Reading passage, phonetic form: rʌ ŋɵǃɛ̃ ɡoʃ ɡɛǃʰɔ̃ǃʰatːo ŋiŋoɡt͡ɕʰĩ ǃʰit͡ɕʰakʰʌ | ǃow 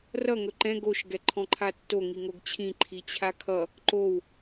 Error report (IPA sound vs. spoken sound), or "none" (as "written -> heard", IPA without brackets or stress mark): none